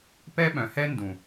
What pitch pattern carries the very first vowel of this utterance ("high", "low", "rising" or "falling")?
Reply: high